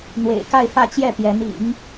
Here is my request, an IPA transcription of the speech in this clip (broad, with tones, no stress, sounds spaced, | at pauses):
n̪ w ḛ˨˩ ɪ̯ k a˥˧ ɪ̯ f ä˥˧ t͡ɕ j ɛ˥˩ p j ɛ˧˥ n ḭ˨˩˦ ŋ